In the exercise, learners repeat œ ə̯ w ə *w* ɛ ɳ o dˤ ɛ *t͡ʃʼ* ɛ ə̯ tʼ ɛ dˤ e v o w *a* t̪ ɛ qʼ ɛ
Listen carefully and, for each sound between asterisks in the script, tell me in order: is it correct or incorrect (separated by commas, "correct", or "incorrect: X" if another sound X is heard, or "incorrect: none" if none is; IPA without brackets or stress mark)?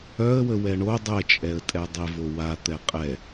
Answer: correct, correct, correct